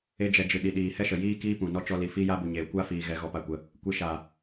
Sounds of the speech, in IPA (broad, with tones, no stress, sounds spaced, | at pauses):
e˧ d͡ʒ ɛ˨ d͡ʒ ɨ˨ ɗ i˨ ɗ iː˨ h ɛ˦ ʃ ə˨ j iː˦ k iː˦ p ũ˨ n ɔ˦ t͡ʃ ɔ˧ l i˨ f i˦ j a˦ b u˨ ɲ e˨ kʷ a˦ f iː˨ ɣ ɛ˦ ɣ ɔ˦ p a˦ kʷ ə˦ | kʷ e˧ ʃ a˨